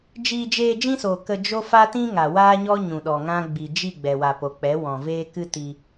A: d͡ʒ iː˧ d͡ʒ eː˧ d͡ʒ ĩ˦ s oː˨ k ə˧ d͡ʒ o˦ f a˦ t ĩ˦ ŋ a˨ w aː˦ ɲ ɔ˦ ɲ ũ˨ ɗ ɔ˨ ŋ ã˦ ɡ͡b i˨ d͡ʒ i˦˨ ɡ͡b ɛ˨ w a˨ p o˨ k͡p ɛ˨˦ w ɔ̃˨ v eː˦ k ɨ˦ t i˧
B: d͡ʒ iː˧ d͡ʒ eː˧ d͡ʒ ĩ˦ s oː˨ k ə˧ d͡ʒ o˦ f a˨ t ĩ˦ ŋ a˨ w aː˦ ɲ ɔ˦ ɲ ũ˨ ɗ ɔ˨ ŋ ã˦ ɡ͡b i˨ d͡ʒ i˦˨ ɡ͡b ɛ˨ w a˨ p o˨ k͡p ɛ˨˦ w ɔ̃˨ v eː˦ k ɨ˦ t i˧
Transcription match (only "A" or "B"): A